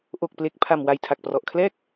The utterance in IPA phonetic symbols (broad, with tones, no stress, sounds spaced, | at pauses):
ʔ o˨˩ k̚ p l e˨˩ k̚ pʰ a˨˩ m w a˨˩ j tʰ a˨˩ k̚ p r ɔ˨˩ ʔ kʰ l ɛː˥˩ k̚